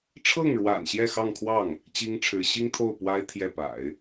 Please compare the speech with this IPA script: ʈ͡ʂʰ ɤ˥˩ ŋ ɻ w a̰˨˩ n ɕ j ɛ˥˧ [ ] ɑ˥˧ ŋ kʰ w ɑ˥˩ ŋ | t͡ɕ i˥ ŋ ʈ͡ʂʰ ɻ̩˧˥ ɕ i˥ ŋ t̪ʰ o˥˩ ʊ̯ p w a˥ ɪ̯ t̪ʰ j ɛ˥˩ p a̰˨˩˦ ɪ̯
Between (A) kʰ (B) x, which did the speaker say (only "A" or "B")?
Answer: B